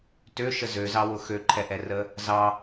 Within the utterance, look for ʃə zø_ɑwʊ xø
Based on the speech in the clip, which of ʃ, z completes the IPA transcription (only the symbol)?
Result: z